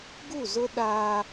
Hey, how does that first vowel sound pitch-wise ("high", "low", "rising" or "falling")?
falling